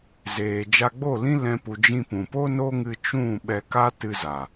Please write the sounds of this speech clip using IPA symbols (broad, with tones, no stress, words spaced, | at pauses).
zeː˨d͡ʒa˧ɡ͡bo˦˨ lĩ˦lɛ̃˧pu˨ d͡ʒĩ˧pũ˨ po˦no˦ ŋɨ˧t͡ʃũ˦˨ ɓɛ˧ka˦ tɨ˧za˨